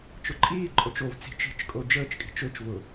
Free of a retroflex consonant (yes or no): yes